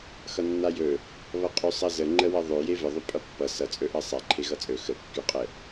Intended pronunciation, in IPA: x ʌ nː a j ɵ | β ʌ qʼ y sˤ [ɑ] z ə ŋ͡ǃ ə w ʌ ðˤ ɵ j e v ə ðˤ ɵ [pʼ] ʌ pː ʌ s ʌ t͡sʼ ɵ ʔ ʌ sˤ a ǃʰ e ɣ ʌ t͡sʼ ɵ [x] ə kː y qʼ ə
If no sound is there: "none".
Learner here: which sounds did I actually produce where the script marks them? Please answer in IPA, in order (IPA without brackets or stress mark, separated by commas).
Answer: ʌ, pʼ, x